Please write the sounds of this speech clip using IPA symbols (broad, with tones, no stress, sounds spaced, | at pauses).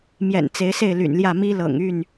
m j ɛ̰˨˩ n t͡s e˨˦ ɪ̯ s e˥˨ ɪ̯ l y̰˨˩ n l j ä˥˨ m i˦ l ɤ̰˨˩ ŋ y˥˨ n